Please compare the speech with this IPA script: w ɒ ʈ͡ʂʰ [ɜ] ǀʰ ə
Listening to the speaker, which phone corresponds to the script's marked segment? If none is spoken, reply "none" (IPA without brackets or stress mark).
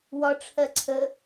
ɜ